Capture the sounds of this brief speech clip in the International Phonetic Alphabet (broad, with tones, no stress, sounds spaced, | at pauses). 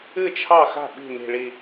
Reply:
ɨ˥˩ t͡ʃʰ ɑ˥˩ x a̤˥˩ ɓ i̤˥˩ n i̤˧˩ ɭ i˧˩